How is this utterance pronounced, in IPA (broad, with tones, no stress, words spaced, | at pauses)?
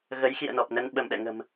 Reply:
ɣə˨˦jxḭ˧˨ə̯nɔ˨˩p̚nə˧n ɓə˧˩mɗɛ̰˧˨ŋə̤˨˩m